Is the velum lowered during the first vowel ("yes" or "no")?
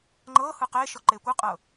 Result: no